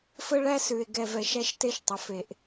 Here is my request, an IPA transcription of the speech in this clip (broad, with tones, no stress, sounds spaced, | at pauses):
f ə˦ ɭ æ˦ s ʉ˨ e̯ ɡ ɛ˨ v ɛ˨ ʃ æ˦ ʃ t e˦ ʃ tˤ ə˨ f e˨ ʔ